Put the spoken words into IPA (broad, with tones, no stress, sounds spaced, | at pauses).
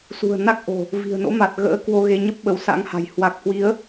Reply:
s ṳ˨˩ ə̯ n a˦˥ k̚ ʔ o̤˨˩ | v i̤˨˩ ə̯ n o̰˧˥ m a˨˩ t̚ ɣ ə̰ː˧˥ k w o˧ ɣ e˧ ɲ ə˦˥ p̚ ɓ ə˨˦ w s a̰˧˥ ŋ h a̤˨˩ j h w a˨˩ k̚ h w i˨˦ ə̯